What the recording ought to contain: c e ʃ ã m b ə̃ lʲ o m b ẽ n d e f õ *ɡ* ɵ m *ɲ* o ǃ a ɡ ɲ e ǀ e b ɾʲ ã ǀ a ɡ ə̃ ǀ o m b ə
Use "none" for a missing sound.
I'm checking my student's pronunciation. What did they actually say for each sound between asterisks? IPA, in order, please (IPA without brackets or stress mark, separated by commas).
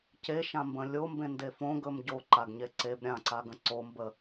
ɡ, ɟ